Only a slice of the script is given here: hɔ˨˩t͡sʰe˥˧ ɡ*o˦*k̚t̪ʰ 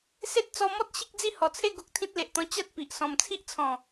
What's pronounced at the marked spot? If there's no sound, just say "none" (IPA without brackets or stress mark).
o˦